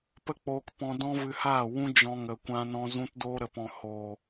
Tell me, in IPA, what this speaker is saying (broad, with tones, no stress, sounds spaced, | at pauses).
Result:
p ə˦ k͡p oː˧ k p ɔ̃˧ d ɔ̃˦ v ɨ˧ h aː˦˨ w ũ˦ d͡ʒ ɔ̃˧ ŋ ə˨ kʷ ã˧ n ɔ̃˧ z ũ˧ t d oː˧ ɾ ə˨ p ɔ̃˨ h o˨